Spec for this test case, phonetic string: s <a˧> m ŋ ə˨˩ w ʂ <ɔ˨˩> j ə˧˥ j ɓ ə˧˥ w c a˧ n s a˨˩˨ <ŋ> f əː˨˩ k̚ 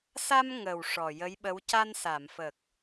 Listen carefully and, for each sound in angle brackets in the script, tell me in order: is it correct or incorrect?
correct, correct, incorrect

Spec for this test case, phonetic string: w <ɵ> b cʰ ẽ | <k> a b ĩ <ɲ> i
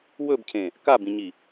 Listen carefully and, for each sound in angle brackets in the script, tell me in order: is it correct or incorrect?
correct, correct, correct

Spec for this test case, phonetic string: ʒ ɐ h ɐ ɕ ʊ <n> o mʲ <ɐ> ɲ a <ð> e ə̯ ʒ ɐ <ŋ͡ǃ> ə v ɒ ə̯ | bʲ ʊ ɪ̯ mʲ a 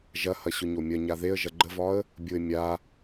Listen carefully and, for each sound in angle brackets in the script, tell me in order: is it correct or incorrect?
incorrect, correct, correct, incorrect

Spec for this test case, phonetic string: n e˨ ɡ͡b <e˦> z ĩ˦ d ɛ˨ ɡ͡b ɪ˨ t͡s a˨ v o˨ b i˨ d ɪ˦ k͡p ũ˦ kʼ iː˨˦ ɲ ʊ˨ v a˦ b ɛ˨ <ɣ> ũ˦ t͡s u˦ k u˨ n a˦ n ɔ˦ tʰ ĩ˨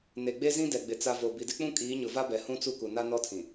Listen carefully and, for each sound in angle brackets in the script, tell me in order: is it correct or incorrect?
correct, incorrect

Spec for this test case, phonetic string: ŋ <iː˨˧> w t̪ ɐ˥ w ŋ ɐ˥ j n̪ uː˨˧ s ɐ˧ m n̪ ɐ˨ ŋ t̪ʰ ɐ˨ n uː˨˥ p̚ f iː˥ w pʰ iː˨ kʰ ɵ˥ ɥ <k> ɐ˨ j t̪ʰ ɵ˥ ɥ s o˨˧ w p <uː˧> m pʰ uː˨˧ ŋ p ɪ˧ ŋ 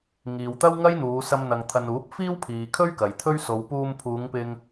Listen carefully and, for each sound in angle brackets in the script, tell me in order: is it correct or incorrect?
incorrect, correct, correct

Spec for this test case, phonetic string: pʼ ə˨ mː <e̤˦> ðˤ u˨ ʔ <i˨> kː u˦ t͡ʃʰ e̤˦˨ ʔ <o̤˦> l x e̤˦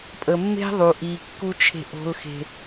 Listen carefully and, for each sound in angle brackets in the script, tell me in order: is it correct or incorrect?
correct, correct, correct

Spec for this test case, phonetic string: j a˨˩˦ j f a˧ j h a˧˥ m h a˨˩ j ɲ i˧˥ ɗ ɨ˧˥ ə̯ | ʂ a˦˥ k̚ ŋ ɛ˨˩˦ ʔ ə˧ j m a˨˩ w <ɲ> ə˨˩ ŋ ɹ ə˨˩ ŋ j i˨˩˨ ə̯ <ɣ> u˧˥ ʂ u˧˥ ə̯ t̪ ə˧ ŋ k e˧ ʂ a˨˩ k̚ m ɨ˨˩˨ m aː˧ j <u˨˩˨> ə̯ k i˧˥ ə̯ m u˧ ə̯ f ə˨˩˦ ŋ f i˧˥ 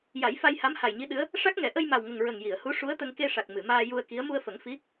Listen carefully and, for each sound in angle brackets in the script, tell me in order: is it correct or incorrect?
incorrect, incorrect, incorrect

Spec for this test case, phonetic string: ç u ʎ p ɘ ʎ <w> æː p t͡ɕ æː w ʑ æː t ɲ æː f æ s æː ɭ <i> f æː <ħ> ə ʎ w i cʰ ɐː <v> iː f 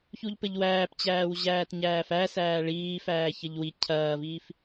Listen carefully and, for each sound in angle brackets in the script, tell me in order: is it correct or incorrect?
correct, incorrect, incorrect, correct

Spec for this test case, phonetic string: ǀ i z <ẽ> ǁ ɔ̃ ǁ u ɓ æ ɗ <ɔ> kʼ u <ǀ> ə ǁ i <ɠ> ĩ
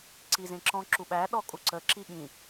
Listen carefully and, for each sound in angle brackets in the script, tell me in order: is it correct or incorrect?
correct, correct, correct, correct

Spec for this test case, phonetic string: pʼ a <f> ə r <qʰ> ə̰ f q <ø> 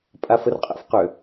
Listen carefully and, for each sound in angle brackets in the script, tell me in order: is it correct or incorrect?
correct, incorrect, correct

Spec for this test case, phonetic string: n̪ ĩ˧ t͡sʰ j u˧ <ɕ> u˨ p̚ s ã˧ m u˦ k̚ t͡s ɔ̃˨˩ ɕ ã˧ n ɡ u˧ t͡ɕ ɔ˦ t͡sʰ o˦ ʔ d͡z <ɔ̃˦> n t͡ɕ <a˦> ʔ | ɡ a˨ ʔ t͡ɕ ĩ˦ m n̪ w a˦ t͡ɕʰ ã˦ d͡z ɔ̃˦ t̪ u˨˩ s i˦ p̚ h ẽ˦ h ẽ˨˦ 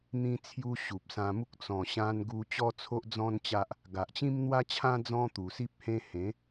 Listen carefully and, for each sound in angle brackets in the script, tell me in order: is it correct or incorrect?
correct, correct, correct

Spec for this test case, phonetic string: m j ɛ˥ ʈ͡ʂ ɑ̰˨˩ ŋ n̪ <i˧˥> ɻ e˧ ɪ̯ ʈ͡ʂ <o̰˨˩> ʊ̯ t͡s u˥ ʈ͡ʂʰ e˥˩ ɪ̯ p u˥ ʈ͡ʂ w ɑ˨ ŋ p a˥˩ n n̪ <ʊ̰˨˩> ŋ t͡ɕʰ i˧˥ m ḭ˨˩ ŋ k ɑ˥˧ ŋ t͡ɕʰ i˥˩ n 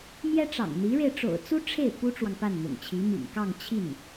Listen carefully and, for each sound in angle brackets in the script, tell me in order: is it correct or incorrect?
correct, correct, correct

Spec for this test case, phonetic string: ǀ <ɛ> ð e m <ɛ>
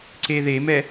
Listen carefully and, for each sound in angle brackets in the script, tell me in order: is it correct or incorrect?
incorrect, correct

